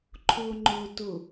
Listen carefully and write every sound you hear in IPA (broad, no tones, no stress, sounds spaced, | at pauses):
ǃʰ ʊː ŋ͡ǃ ʊː t ʊ